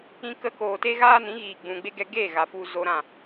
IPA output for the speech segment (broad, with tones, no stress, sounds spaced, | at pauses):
ĩ˧ k ə˧ k oː˨ t e˦ ɣ aː˦ n ĩ˨˦ ɣ iː˨ ɡ͡b ũ˨ ɡ͡b e˦ ɡ ɛ˧ ɡ e˦˨ ɣ a˨ f u˧ z o˧ ɾ ã˦˨